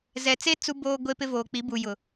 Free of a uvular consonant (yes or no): yes